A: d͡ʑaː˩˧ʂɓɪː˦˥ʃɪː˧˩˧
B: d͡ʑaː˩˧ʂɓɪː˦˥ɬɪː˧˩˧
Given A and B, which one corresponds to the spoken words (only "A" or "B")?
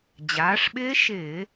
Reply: A